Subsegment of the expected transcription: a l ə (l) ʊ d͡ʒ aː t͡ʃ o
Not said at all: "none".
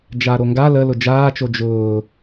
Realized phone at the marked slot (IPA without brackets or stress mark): l